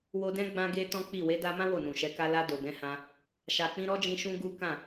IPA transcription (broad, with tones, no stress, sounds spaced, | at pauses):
w o˧ d ɛ̃˦ ɡ͡b ã˦ ɡ e˦ t ɔ̃˦ k͡p i˦˨ w e˨˦ d a˧ m ã˦ w o˦˨ n ũ˨ ʃ ɛ˨˦ k a˧ l a˧ d o˨ ɡ ɛ̃˨˦ h ã˧ | ʃ a˨ k͡p ĩ˧ ɾ ɔ˦ d͡ʒ ĩ˧ ʃ ũ˦ ɡ u˦ k ã˦˨